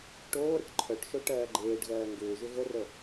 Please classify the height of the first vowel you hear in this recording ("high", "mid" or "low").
mid